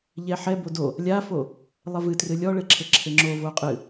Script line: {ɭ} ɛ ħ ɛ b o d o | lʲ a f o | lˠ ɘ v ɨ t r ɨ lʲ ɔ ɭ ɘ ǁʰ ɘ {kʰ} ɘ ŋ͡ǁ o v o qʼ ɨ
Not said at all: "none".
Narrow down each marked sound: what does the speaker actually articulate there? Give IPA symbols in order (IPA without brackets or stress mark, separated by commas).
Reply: ʎ, ǁʰ